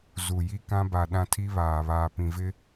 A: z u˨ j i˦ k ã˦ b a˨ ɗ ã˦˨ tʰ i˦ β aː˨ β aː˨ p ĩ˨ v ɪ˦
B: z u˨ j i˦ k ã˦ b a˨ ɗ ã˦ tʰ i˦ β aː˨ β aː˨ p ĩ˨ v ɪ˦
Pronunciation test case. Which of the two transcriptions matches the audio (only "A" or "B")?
B